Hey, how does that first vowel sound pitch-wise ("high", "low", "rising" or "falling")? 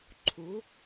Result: rising